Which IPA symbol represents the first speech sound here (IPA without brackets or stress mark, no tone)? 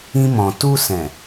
ĩ